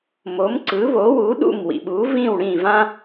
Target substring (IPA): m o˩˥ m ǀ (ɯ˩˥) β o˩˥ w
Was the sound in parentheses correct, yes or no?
yes